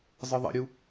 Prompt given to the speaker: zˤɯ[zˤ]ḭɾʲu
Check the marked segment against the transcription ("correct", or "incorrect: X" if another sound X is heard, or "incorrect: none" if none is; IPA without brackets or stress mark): incorrect: ðˤ